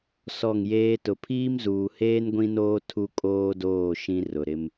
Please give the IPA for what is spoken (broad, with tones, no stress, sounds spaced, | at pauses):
s ɔ˦˨ ŋ j eː˦ t ʊ˨ pʰ iː˦ m z uː˨ h eː˦ n ɡʷ ĩ˦ n oː˦ tʰ u˦ kʼ oː˦ d oː˦˨ ʃ ĩ˦ r ʊ˨ ɾ ɪ˦ m